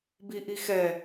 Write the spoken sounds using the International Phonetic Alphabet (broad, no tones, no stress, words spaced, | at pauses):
biʔixɛ